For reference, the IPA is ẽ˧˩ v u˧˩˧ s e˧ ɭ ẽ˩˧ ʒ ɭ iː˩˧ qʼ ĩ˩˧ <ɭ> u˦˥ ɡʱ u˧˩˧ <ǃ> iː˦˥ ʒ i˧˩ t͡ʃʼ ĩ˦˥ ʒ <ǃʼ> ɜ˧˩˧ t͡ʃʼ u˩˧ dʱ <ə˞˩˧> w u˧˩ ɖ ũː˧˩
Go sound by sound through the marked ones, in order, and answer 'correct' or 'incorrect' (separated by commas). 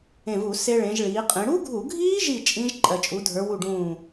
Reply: incorrect, incorrect, correct, correct